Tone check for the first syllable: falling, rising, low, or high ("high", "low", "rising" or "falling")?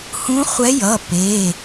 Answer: rising